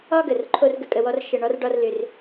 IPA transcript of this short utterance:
ɒ˥ ɡ ə˩ r ǃʰ o˥ r ɡ ə˧ kʼ ə˧ w ɔ˥ r ʃ ə˧ ɳ ɔ˥ r ɖ ɒ˥ r l ʏ˧ r

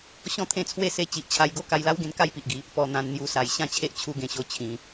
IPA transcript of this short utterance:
ɕ ɔ̃˥˧ t̪ʰ ẽ˦ t͡sʰ w e˥˧ s e˧ t͡ɕ i˨ ʔ t͡ɕʰ a˧ j ɡ o˥˧ k a˧ j l a˦ w ɡ ẽ˧ n k a˥˧ j p i˨ ʔ ɡ i˨˦ | p ɔ˧ n̪ ã˧ n n̪ j u˧ s a˨˩ j ɕ ã˦ t͡ɕʰ e˦ ʔ t͡ɕʰ u˧ ɡ ẽ˨˩ ɕ o˧ t͡ɕʰ ĩ˧

